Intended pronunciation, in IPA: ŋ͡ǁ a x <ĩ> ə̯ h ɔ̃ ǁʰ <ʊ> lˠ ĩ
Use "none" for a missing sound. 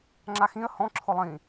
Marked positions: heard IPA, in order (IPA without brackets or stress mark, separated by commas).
ĩ, ʊ